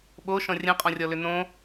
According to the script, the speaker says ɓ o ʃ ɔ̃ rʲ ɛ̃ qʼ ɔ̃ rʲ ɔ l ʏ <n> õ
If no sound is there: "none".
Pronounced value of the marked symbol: n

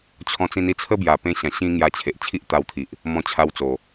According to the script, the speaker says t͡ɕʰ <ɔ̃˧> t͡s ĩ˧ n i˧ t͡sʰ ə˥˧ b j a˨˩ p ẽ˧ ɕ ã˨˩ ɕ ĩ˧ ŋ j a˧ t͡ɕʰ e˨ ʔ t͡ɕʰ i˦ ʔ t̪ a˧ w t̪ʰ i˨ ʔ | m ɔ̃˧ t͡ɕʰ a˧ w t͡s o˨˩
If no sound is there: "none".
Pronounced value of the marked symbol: ɔ̃˧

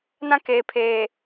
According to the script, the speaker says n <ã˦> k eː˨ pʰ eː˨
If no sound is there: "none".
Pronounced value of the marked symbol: ã˦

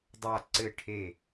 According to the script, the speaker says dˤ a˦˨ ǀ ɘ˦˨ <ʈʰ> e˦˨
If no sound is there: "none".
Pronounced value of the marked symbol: ʈʰ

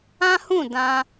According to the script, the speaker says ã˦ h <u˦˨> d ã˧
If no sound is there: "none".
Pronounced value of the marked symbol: ũ˦˨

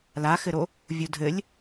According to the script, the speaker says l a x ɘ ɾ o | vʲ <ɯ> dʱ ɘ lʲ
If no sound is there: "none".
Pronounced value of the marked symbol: u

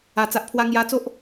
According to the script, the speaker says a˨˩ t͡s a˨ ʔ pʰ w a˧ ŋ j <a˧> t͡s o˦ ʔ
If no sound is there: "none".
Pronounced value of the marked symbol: a˧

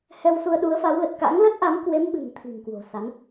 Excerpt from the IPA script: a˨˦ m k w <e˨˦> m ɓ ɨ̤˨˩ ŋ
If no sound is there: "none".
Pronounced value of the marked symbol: e˨˦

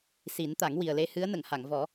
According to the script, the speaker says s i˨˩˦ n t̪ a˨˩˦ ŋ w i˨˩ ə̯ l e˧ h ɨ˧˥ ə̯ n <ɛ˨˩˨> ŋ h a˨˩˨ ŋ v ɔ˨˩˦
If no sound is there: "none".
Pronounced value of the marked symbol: ə˨˩˨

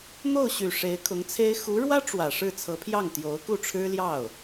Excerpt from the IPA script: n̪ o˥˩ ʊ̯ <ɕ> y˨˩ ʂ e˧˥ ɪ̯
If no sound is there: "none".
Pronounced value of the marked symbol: ɕ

